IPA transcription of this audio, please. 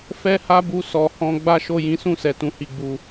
f ɛ˦ h a˦ b u˧ s ɔ˨ h ɔ̃˧ ɡ͡b a˦ ʃ o˦˨ j ĩ˨˦ s ũ˦˨ s ɛ˨ t ũ˨ h i˨ ɡ͡b u˨

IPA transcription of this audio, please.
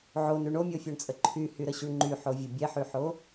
ʕ o n ʉ ɳ o mʲ o fʲ o ɳ t͡sʼ ə ǃʰ y h y ɾ ə ɕ y ɳ ŋ͡ǃ y ħ o vʲ ə bʲ ɛ ħ y ħ o

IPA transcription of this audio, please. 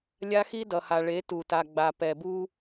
lʲ a˦ x i˦ d ʌ˨ h a˨ ɭ e˨˦ t u˨ t a˨ ɡ͡b a˨ p ɛ˨ b u˦

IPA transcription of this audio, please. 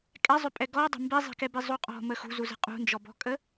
kʼ ɛ zˤ ʏ pʼ ɛ ɡ ɔ dˤ ə̤ m b i zˤ i̤ k ɛ b i zˤ u qʼ ɔ̤ m ə x ṳ z u z ə̤ qʼ ṳ n d͡ʒ ɔ b ɔ̤ kʼ ə

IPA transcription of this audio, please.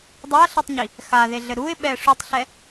dˤ a ɬ ɨ tˤ ɲ i | x a ð e ɮ ɘ ɾ u ɪ̯ ɓ ɛ ʂ u tˤ ɬ ɛ

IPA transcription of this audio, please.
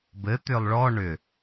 b ɘ t̪ ʏ lˠ ɭ ɔ ɳ ʏ

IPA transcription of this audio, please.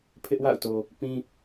pʰ ɪ˦ ʔ w a̰˦˨ ʊ̯ t o˨ | p ĩ˦

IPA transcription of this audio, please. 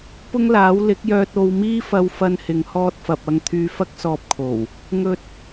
p ʊ˥ ŋ l aː˨˥ w l ɪ˨˥ k̚ j œː˧ t̚ o˧ w m iː˥ f ɐ˧ w f ɐ˧ n h ɪ˨ ŋ h ɔː˧ t̚ f ɐ˨ p̚ ɐ˧ ŋ t̪ʰ yː˧ f ɐ˥ k̚ s ɔː˧ p̚ kʰ o˨˩ w | ŋ ɵ˧ t̚

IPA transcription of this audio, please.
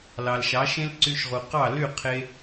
l ɑ˩ l ʃ ɑ˩˥ ʃ ẽ˥ l ǀ y˧ ʃ ʁ u˩ q ɑ˥˩ l y˥˩ qʰ e˧

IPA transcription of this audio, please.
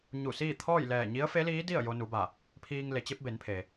ɲ u˧˩ s iː˥˨ t̪ʰ ɔː˥˨ j l ɛː˧˩ ɲ i˧˥ ə̯ f e˧˥ l iː˧˥ d i˥˨ ə̯ j o˧ n u˩˧ b a˧˩ | pʰ iː˧ ŋ l e˩˧ t͡ɕ e˧˥ p̚ b e˩˧ n pʰ e˩

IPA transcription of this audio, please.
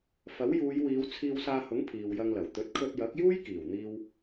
f ɐ˨˥ w j uː˨˧ j w iː˨˧ w t͡sʰ iː˧ w s aː˧ h ʊ˨˥ ŋ pʰ iː˨ w j ɐ˧ ŋ l ɐ˨˩ w t̪ ɵ˨˥ t̚ kʰ ɵ˧ t̚ j ɐ˨˥ k̚ j uː˥ j k iː˨˩ w n̪ iː˧ w

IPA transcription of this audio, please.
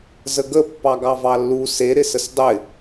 z ə ɡ ə pː ɑ ɡ ɑ v ɑ lː u s e ɾ ɪ s ə s dˤ ɪ

